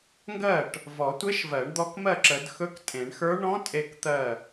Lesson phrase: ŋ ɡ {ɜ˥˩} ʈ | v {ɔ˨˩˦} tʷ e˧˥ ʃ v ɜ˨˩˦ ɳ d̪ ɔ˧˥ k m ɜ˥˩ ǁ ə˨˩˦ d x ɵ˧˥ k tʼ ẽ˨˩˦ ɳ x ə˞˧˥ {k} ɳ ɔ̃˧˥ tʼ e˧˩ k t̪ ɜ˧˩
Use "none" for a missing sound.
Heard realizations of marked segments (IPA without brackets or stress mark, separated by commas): ɜ˥˩, ɔ˨˩˦, none